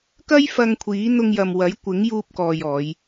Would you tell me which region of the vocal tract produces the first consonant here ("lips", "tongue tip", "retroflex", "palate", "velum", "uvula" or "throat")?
velum